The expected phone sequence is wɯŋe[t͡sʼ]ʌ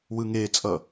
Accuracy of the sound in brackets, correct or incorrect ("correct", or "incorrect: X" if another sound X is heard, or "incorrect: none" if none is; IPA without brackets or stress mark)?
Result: correct